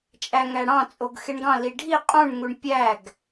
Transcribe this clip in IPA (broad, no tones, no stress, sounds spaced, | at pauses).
t͡ʃʼ æ ŋ æ ɽ ɑ̃ t͡sʼ o ɡ x e ɳ ɡ ɑ̃ l i ɖʱ i qʼ ũ ɳ ŋ u ɳ pʲ æ ɡ